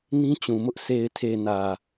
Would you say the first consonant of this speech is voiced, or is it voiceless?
voiced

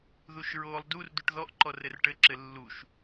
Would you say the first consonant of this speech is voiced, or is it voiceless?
voiced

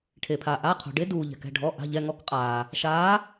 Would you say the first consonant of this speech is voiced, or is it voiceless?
voiceless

